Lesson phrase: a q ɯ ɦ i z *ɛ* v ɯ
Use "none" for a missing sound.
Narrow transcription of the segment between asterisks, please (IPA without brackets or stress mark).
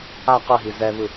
ɛ